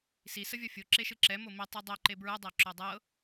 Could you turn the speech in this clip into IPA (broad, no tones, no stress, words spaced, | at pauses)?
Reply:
si səvʲɔfʲo ǁeʃɯǁɛ momi tˤɯdˤø ǃebɹɯ dˤɛǁodˤɤ